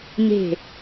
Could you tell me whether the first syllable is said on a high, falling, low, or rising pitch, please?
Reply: falling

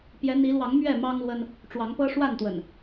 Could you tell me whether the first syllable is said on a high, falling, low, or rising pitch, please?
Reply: rising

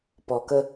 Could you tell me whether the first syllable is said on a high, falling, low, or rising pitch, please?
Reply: low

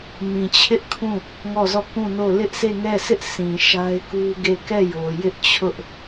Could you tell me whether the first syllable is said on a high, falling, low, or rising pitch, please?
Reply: low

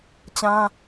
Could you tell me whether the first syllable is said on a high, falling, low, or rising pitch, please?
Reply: high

